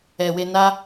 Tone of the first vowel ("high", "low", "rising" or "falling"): low